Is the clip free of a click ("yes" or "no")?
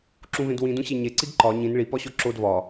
no